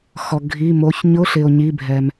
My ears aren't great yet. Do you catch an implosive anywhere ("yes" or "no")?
no